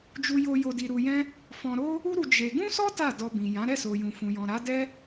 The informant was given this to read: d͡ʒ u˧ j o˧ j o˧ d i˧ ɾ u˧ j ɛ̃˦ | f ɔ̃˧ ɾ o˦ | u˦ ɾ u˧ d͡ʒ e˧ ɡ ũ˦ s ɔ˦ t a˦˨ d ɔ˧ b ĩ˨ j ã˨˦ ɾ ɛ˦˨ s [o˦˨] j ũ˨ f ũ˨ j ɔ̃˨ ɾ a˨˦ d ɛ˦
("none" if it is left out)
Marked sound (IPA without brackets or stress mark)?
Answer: o˨